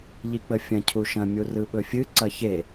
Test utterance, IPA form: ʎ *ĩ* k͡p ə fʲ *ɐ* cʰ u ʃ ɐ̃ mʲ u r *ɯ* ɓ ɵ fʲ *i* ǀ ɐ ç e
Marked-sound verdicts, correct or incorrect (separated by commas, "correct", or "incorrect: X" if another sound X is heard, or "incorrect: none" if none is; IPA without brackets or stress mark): incorrect: i, incorrect: ɐ̃, correct, incorrect: ɨ